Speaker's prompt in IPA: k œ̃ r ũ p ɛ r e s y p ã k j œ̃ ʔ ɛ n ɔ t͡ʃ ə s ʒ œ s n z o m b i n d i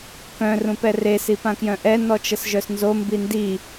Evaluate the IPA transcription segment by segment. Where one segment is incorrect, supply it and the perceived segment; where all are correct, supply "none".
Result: y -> i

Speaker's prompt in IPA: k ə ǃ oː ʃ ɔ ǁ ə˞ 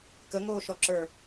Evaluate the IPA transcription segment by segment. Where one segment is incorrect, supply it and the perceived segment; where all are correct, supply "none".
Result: ǃ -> ŋ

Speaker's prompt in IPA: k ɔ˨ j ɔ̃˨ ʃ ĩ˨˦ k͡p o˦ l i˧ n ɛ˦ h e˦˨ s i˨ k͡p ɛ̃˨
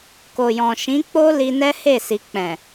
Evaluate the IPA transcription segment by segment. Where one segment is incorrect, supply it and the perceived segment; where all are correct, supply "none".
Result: ɔ˨ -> o˨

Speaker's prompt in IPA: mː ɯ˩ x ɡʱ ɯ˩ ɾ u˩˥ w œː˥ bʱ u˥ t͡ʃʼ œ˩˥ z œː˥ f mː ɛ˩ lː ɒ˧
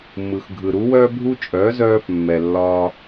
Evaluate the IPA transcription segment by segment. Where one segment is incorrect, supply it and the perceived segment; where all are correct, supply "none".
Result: none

